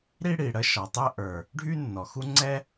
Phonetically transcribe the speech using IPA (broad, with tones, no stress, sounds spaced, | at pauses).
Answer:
ɾ i˥ ɽ i˩ ɽ ə˥ ʃ ɒ˩ tˤ ə˥ ʔ ə˞˩ | ɖʱ y˥ nː ɔ˩ x u˥ ŋ͡ǀ ɛ˥